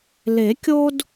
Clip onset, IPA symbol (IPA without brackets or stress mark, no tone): l